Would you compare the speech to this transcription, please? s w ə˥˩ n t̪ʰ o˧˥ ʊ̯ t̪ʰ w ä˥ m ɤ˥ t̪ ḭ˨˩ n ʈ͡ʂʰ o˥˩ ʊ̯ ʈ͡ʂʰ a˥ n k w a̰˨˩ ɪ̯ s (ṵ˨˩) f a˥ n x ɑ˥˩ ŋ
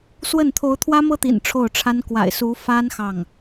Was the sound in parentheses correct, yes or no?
no